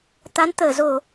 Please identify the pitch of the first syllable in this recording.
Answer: rising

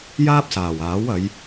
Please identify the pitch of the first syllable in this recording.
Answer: high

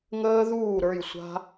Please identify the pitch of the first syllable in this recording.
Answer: high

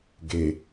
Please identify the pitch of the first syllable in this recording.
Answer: low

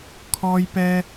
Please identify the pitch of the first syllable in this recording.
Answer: high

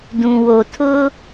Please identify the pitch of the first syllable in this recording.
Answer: low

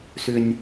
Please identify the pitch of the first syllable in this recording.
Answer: low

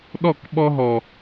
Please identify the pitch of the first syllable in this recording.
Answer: falling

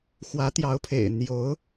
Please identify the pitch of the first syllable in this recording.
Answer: rising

